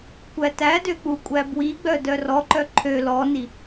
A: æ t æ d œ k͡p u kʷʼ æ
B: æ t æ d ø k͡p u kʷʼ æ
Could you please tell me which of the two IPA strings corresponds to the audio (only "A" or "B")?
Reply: B